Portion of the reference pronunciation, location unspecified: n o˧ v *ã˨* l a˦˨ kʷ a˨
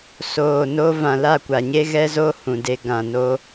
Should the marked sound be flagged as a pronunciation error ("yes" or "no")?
no